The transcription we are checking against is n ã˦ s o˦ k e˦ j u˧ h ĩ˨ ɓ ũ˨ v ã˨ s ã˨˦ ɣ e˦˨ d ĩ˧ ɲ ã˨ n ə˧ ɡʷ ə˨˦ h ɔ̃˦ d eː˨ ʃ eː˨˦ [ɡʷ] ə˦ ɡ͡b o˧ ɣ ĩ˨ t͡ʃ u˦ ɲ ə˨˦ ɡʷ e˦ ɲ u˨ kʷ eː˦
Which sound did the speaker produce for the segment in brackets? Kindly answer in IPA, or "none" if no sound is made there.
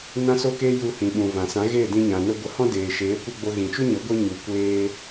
kʷ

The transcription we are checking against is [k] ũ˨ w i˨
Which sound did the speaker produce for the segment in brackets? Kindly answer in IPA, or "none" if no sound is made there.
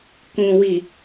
k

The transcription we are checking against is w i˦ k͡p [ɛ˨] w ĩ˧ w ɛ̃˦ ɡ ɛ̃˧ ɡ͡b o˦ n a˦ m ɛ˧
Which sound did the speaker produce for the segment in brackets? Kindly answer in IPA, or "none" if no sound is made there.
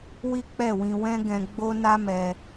ɛ˦˨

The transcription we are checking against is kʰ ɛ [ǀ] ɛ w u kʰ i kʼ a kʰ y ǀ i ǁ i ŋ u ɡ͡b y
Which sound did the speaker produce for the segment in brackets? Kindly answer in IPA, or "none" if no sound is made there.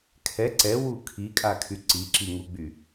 ǀ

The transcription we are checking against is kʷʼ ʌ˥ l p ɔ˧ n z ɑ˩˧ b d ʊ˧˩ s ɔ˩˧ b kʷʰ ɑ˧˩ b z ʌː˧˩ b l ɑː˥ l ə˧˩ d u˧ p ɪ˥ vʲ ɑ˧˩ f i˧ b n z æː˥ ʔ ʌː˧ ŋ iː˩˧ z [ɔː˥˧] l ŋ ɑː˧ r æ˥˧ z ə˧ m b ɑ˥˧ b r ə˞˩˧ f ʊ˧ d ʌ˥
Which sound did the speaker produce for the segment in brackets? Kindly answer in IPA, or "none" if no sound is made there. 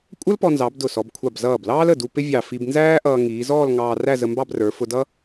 ɔː˥˧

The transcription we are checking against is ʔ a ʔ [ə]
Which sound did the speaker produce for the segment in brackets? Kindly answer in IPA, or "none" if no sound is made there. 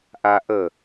ə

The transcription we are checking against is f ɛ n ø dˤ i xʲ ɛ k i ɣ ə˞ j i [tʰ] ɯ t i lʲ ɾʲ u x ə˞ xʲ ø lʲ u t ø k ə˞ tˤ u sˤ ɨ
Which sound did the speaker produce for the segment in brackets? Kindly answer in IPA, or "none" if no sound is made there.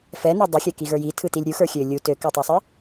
tʰ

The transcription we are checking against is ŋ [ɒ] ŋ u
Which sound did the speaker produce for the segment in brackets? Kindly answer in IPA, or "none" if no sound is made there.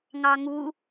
ɑ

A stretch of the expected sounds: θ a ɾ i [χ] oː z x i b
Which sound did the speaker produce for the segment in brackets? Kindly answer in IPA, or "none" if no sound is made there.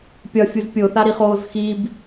χ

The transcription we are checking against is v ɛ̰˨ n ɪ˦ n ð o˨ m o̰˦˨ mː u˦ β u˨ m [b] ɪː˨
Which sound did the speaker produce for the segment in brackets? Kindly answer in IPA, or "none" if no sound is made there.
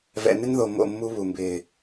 b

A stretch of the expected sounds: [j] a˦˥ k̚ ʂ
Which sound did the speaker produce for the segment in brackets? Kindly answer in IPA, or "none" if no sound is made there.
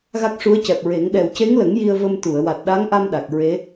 ɣ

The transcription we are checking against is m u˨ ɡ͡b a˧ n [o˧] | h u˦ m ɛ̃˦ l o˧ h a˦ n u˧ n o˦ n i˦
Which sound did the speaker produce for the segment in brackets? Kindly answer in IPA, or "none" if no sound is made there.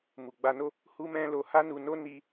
o˦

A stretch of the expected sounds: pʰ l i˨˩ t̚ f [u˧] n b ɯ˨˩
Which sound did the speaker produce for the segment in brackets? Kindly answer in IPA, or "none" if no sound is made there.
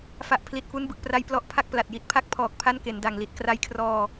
u˦˥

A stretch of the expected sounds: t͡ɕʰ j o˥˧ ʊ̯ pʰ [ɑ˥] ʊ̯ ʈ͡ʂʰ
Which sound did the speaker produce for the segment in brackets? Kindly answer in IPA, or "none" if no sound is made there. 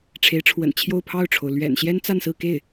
ɑ˥˩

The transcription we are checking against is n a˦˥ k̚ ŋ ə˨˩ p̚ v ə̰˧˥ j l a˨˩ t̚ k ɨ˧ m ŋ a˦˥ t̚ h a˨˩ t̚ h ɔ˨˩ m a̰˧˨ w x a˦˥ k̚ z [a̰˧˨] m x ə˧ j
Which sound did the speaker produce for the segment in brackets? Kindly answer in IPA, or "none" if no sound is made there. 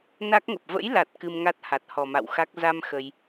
a˧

